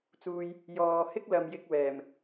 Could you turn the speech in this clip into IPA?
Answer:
t͡s uː˧ j | j ɔː˨ h ɪ˥ k̚ l ɐ˨ m j ɪ˧ k̚ w ɛː˨˩ m

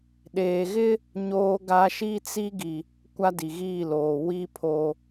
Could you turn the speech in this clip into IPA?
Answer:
ɗ eː˨ ɣ ɪ˦ | ɲ oː˦ ɡ a˦ ʃ i˦ t͡s i˦ ɡ i˨ | kʷ a˦ d i˨ ɣ iː˦˨ l oː˨ w i˦ pʰ o˨

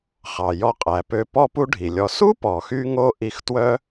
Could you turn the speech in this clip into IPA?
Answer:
χ ɑ˩ j ɔ˧ qʼ æ˩ p ø˧ p ɔ˥ p u˥ ɖʱ i˩ lʲ ɔ˧ s u˥ p ɔ˩ x y˧ ŋ o˧ ʔ i˧ x t w œ˥

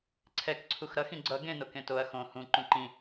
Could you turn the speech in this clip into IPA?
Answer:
ǀʰ ɛ k ǀʰ u x ɾ ʌ x ĩ ɡ͡ǀ ʌ ɡ ẽ n o k ẽ t o ɐ̯ x õ h ũ ǃ ũ ǃ ĩ

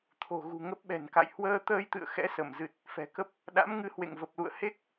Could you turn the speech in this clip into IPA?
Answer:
t̪ʰ o̤˨˩ ɣ ṳ˨˩ ŋ ə˦˥ p̚ ɓ ɛ̤˨˩ n k a̰˧˨ j h w əː˧ t̪ əː˧ j t̪ ɨ̰˧˨ ə̯ x ɛ̰˧˥ s ə˧˩ m z ɨ˨˩ t̚ | f ɛ̤˨˩ k ə˦˥ p̚ | ɗ a̰˧˥ m ŋ ɨ˧ h w ḛ˧˨ ŋ v ə˨˩ p̚ l ṵ˧˨ ə̯ h e˦˥ k̚

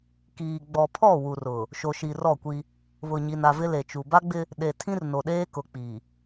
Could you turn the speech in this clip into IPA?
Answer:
k iː˨ ɡ͡b ɔ˨ pʰ ɔ˦˨ w u˨ r ʊ˨ | ʃ o˨ ʃ i˨ r ɔ˦˨ kʷ i˦ | β ʊ˨ ɲ i˨ n a˨ v ɪ˦ l e˨ t͡ʃ u˨ b a˦ ɡ͡b ɪ˦ | ɗ e˨ tʰ ĩ˦ r n o˨ ɗ eː˦ k ʊ˨ k͡p i˨

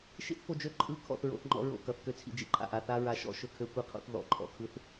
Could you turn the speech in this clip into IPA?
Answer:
ʃ ḭ˦ θ f o˧ d͡ʒ ø˦˨ ǃʼ ɯ˧ kʰ ɔ̰˦˨ θ ɹ o̰˧ θ ŋ͡ǃ ɔ̰˦ ɹ o̰˦˨ k ʌ˨ θ k ø˦ t͡sʰ ḭ˧ d͡ʒ ḭ˧ ǃʰ a̰˨ ʔ a˧ θ a˦ ɹ a˧ ʃ ɔ̰˦ ʃ ɵ˦ kʰ ø˦ kʷ i˦ qʰ o̰˦ θ ð ɔ̰˨˦ ǃʼ ɔ̰˨ kʰ ɯ˦ θ

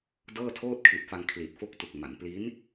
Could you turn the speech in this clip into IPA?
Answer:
d ɤː˥˩ tʰ oː˥˩ t̚ kʰ i˨˩ t̚ f a˧ ŋ kʰ l i˨˩ t̚ f o˦˥ k̚ t u˨˩ k̚ m a˩˦ n p l i˦˥ n

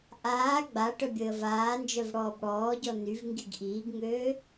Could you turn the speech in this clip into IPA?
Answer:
ʔ aː ɡ͡b a ʈ œ bʲ əː v aː n d͡ʒ œ v ɽ ɔː b ɽ ɔː ɟ ɔ n y v ŋ ɡ i ɡ ʔ iː ɡ ŋ øː

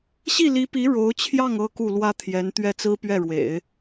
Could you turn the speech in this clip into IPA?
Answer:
ɕ i˥˩ l i˧˥ p i˧˥ ɻ o˧˥ ʊ̯ t͡ɕʰ j ɑ˥˩ ŋ ɤ˥ k u˥˩ l w ä˥ t̪ʰ j ɛ˧˥ n t̪ ɥ ɛ˥˩ t͡s ɹ̩˥ p ɥ ɛ˥˩ ɻ w ḛ˨˩˦ ɪ̯

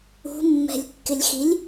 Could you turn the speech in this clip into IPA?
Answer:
ṳ mː ɛ̤ lʲ kː ɪ lʲ x i lʲ

